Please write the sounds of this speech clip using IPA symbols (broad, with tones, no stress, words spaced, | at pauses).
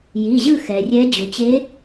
ji˩˧˩ʑɯ˥˧xɛ˩rʲɛ˧˥ d͡ʑu˩t͡ɕe˧˥